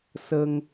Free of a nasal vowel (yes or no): yes